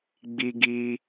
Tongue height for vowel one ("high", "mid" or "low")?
high